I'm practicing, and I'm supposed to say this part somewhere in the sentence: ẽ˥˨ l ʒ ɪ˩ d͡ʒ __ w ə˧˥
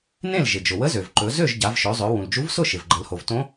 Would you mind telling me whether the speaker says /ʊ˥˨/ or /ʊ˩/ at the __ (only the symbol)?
ʊ˩